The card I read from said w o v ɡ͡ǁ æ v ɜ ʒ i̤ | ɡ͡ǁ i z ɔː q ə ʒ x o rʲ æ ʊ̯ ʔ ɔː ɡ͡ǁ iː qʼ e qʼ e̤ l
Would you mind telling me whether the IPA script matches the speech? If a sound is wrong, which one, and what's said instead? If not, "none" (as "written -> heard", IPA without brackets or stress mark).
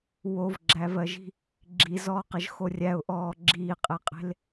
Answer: none